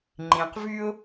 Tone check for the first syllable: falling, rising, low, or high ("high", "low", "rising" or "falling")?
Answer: low